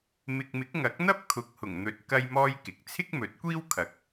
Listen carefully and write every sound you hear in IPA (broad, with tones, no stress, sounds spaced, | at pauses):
m ɪ˨ k̚ m ɪ˨˥ k̚ ŋ ɐ˨˥ k̚ n̪ ɐ˥ p̚ kʰ ʊ˨ k̚ h ʊ˨˩ ŋ n̪ ɵ˨ t̚ k ɐ˥ j m ɔː˥ j k ɪ˨ k̚ t͡sʰ ɪ˥ k̚ m ɵ˨˥ t̚ kʷ iː˥ w kʰ ɐ˨˥ k̚